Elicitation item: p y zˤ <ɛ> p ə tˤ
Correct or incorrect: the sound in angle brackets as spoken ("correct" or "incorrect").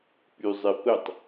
incorrect